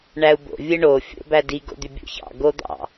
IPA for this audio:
ɳ æ u̯ b o̰ vʲ ɯ ɳ o fʲ o̰ b æ d i ɡ o̰ d̪ y bʲ o̰ ç ɑ̰ ɡ o d̪ ɑ̰

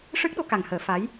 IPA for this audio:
ʂ ɨ˦˥ k̚ ɗ o˧ k a˨˩ ŋ h əː˨˩˦ f a˧˥ j

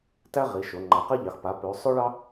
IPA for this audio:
t æ˥ ʁ i˩˧ ʃ o˩˧ ŋ͡ǃ a˩˧ q ɛ˥ ʎ ɑ˩˧ x p a˩˧ p ø˩˧ sˤ ø˥ ɭ ɑ˥

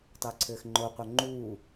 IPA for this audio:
tˤ əː ǀʰ ɘː x ŋ͡ǃ o qʷ œ ŋ͡ǃ uː

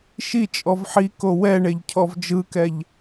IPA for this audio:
ʃ i t͡ʃʼ ɔ v ħ i k o w ɛ ɳ e ʎ cʰ ɔ v d͡ʒ ɯ k ɛ ʎ

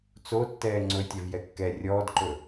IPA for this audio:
t͡s o tː ɛː ŋ͡ǀ ɵ tʲ ɛ v j ɛ kː ɛ rʲ ɔː d ǃ ɵ

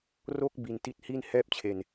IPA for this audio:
r o˥˩ k̚ b i˧ n t i˥˩ t̚ h iː˥˩ n h ɛː˥˩ p̚ t͡ɕʰ e˧ n

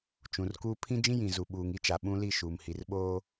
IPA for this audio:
t͡ʃ ũ˨ r k uː˦ pʰ ĩ˦ d͡ʒ ĩ˦ j ĩ˨ z u˨ ɓ uː˨ ŋ i˦ t͡ʃ a˨ ɓ ũ˦ l i˦˨ ʃ uː˨ m h i˨ r ɓ oː˦

